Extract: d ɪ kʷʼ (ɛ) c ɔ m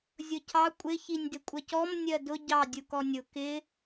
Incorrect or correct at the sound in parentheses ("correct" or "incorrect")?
incorrect